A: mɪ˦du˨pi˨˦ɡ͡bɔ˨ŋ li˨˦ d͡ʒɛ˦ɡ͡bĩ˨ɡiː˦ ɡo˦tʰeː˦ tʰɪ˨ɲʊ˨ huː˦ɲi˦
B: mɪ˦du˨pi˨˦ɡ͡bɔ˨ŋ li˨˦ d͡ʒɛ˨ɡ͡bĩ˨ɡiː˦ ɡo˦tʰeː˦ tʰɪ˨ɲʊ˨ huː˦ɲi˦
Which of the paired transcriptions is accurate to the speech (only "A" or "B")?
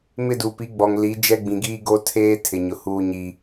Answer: A